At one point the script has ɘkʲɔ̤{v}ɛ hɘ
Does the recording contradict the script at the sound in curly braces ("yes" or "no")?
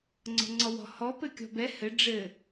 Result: yes